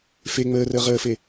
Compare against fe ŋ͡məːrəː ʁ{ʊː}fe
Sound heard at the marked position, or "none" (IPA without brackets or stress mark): əː